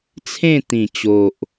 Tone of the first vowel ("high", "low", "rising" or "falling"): falling